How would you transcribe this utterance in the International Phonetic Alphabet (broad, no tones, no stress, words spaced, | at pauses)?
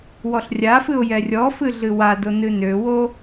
wɔɬrʲafɨʊ̯ jɛrʲɔfɨ ɮɨwado nɨnøwo